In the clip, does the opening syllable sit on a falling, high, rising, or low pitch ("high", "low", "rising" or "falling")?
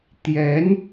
rising